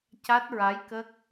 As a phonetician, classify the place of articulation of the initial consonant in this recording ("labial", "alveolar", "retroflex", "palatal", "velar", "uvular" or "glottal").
palatal